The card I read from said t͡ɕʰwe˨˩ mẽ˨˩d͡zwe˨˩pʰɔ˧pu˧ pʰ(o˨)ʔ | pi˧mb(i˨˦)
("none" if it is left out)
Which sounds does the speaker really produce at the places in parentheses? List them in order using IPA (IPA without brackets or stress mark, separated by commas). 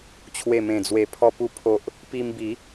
o˨, i˨˦